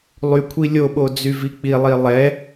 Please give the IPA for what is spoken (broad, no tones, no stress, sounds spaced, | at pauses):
lˠ y kʷʰ i lʲ o ɓ o d͡z y v i k͡p i lˠ i lˠ ɛ